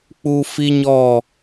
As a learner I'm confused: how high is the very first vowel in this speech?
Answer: high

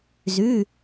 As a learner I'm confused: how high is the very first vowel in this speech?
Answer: high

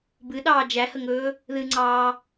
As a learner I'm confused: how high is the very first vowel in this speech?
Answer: high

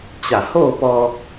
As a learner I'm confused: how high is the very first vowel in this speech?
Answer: low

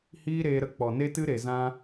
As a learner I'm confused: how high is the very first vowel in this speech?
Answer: high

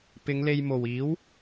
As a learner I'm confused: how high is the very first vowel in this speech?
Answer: high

